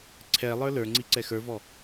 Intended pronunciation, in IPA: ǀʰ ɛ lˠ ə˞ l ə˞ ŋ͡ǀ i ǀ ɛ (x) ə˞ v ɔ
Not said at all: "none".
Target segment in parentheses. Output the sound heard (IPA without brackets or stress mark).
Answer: x